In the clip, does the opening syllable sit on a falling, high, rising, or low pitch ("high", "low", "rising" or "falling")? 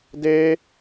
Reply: high